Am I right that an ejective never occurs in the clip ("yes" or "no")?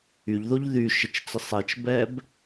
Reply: yes